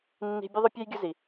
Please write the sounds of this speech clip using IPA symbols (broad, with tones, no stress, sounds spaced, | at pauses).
nː i̤˧ bʲ ʊ˦ ðˤ ʊ˦ pʲ ɛ˦ j ɡʲ ʊ˦ z i˧